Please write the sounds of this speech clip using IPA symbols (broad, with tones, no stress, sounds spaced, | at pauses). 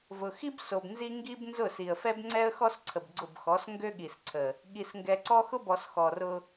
v ʊ˨ x i˦ b s o˨ b n z i˦ ŋ ɡ i˦ b n z ʊ˦˨ s i˨ ə̯ f ɛ˦ b ŋ͡ǀ ɛ˦ ə̯ x ɔ˦ s ǀʰ ə˨ b ɡ͡ǀ ʊ˦˨ b x ɔ˨˦ s ŋ ɡ ø˦ ɠ i˨ s ǀʰ ə˨ | ɠ i˨ s ŋ ɡ ɛ˨ ǀ ɔ˦ x ʊ˦ b ɔ˨ s x ɔ˨ r ʊ˦